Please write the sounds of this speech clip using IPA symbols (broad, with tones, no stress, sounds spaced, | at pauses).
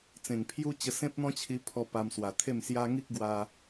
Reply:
t͡s ẽ˨˩ ŋ pʰ j u˦ t͡ɕ ə˧ s ẽ˦ p̚ n̪ ɔ̃˦ t͡ɕʰ i˧ pʰ ɔ˧ p a˧ m s w a˨˩ t̪ʰ e˥˧ m s j a˦ ŋ i˦ k̚ ɡ w a˧